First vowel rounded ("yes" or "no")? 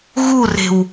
yes